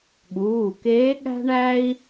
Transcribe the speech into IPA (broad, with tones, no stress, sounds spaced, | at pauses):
ɠ uː˩˧˩ k eː˧˥ ɠ æ̤˥ ɳ æ˥ i̯